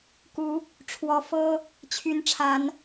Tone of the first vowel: rising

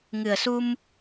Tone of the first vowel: low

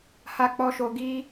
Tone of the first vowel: high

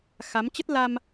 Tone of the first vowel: rising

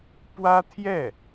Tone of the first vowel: high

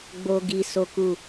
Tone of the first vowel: low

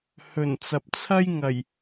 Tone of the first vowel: low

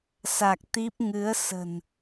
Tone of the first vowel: low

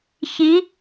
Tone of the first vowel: rising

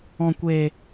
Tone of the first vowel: low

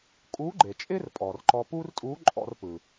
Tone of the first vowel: rising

